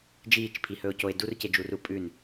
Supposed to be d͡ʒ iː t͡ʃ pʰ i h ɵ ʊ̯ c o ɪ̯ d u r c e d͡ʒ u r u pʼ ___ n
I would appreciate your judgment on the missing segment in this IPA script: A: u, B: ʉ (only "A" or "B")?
B